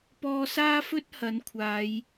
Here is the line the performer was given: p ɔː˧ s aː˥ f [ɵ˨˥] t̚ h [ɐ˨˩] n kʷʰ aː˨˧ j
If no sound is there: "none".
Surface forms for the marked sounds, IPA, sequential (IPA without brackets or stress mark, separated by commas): ɵ˥, ɐ˨˥